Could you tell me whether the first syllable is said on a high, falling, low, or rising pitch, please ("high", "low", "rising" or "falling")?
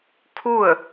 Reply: falling